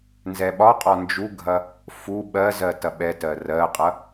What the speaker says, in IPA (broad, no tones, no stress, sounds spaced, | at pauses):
n z ɛ ɓ ɒ qʼ ɒ n d͡ʒ u ɡʱ ɐ | f u ɓ ɜ z ɜ t ɐ ɓ ɛ t ɜ r ɜ qʼ ɐ